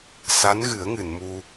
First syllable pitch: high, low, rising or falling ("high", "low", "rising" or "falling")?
rising